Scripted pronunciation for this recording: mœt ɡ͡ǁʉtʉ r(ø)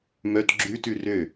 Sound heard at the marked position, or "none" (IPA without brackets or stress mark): ø